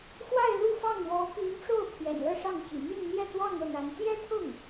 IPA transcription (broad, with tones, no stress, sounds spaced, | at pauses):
x w a˥˧ ɪ̯ l u˥˧ f ɑ˥˩ ŋ w ɔ˧˥ p y˧˥ n ʈ͡ʂ o˥˩ ʊ̯ pʰ j ɛ̰˨˩ n l ɤ˥˧ ʂ ɑ˥˩ ŋ t͡ɕ ḭ˨˩ m y˥˧ n n̪ j ɛ˥˧ t̪ w ɑ˥˧ ŋ ɤ˥˩ n̪ a˧˥ n t̪ j ɛ˥ t̪ʰ ʊ˥˩ ŋ